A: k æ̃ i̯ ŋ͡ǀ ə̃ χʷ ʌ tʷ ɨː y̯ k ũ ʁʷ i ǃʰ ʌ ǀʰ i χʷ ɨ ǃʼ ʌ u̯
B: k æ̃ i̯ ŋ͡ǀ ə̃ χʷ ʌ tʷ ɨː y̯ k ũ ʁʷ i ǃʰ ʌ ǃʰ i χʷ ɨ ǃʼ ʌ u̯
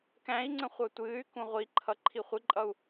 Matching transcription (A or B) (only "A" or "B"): B